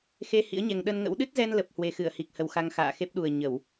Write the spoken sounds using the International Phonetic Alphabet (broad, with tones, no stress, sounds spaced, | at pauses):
x e˧ h ḭ˧˥ ə̯ ɲ ɛ˨˩ ŋ ɗ ə˧ n ŋ ə̰˧˥ w ɗ ɨ˦˥ t̚ z ɛ˧ n l ə˨˩ p̚ h w e˨˩ x ɨ˧˩ ə̯ h i˨˩ k̚ h ə˨˩ w x a˧ ŋ x a̰ː˧˨ x e˦˥ p̚ ɗ u˨˩ ə̯ ɲ ə˧˩˨ w